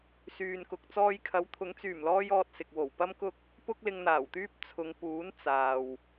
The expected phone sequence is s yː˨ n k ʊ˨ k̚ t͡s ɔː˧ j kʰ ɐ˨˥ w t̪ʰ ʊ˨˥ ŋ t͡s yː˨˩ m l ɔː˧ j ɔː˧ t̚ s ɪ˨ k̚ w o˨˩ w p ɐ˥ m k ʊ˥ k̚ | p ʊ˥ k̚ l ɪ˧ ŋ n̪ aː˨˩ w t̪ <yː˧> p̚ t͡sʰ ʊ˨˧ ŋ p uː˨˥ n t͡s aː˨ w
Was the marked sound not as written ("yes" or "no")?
yes